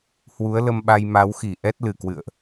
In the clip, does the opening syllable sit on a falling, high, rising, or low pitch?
rising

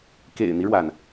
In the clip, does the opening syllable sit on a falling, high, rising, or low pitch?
low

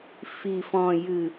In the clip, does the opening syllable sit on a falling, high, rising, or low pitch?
low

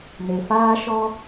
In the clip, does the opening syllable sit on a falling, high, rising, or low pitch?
low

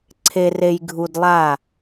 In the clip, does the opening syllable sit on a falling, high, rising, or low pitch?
low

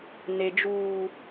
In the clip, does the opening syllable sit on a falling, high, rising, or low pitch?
high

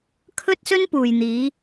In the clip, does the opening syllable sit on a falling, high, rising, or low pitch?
high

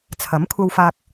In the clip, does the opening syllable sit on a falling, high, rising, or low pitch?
rising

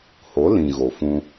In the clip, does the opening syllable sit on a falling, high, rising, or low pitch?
rising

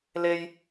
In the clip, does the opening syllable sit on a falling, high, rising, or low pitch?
high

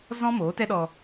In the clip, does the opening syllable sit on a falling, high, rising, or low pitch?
high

